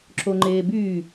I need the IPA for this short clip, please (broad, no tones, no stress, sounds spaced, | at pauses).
ǁ o ŋ͡ǃ eː b y